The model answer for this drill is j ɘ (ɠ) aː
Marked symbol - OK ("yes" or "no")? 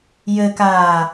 no